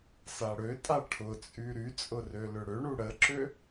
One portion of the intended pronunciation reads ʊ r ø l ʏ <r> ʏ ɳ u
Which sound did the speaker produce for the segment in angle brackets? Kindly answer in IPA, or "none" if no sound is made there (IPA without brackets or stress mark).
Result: ɽ